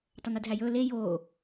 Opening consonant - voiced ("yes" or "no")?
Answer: no